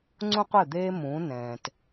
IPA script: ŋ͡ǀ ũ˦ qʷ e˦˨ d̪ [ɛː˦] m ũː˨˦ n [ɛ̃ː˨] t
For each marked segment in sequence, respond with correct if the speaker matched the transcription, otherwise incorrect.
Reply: incorrect: eː˦, correct

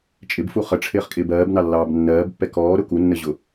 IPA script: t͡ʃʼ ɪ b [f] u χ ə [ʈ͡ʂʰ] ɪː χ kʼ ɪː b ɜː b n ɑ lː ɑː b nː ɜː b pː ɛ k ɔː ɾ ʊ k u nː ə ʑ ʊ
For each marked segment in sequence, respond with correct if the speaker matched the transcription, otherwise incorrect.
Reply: correct, correct

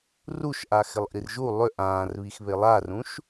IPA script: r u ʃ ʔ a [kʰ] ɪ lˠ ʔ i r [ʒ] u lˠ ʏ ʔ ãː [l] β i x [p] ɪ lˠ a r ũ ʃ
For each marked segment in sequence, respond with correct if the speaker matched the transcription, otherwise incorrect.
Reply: incorrect: x, correct, incorrect: r, incorrect: β

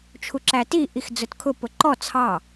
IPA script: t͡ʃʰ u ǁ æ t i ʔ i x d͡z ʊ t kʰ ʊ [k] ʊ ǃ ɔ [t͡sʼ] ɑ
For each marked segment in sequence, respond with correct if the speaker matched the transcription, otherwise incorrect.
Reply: incorrect: p, incorrect: t͡sʰ

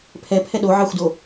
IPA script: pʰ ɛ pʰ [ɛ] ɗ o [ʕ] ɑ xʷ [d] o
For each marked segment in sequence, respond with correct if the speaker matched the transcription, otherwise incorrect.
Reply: correct, correct, correct

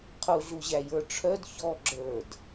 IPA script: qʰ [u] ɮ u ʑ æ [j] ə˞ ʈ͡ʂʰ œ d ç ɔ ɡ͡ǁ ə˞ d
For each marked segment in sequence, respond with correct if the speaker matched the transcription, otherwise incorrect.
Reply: correct, correct

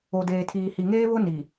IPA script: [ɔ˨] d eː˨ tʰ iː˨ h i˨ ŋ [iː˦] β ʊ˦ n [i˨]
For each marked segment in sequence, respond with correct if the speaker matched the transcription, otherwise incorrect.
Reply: incorrect: o˨, incorrect: eː˦, correct

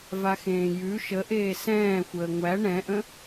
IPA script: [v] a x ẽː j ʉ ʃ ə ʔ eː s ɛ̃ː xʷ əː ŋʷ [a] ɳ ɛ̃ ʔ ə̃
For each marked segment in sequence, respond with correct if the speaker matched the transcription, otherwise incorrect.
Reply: correct, incorrect: æ

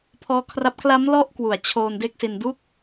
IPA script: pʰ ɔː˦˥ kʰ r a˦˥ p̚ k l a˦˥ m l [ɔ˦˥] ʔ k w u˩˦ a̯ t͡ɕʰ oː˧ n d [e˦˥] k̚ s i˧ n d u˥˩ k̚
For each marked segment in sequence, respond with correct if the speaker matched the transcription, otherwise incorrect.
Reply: correct, correct

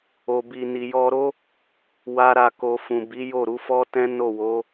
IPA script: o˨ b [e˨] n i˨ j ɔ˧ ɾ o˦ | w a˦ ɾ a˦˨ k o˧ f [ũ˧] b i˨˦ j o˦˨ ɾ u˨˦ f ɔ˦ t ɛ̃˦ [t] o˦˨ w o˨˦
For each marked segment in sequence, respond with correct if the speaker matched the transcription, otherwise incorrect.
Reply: incorrect: i˨, incorrect: ũ˨, incorrect: n

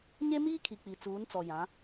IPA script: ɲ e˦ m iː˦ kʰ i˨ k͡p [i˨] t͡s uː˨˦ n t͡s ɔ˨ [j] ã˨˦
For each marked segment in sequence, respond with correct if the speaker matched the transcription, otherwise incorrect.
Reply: correct, correct

